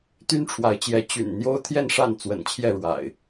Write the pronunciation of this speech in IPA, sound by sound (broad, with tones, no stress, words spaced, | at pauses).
t̪y˦nʈ͡ʂʰwa˨˦ɪ̯t͡ɕjɛ˨˦ t͡ɕy̰˨˩n n̪jo˦ʊ̯t̪ʰjɛ˥˨nʂa˥˨n t͡swə̰˨˩nt͡ɕʰjɛ˥˨ɻwa̰˨˩ɪ̯